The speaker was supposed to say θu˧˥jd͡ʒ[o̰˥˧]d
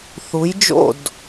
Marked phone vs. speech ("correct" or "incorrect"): correct